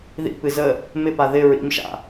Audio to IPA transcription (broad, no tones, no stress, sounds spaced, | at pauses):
ð ḭ p ɨ z ə | m ɪ p a ð ɪ ɹ ḭ m ʃ a̰